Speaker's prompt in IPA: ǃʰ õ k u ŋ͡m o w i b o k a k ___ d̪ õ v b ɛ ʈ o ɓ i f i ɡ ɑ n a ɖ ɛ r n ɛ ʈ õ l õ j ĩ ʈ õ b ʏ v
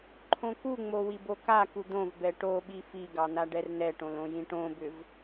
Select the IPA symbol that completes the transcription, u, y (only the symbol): u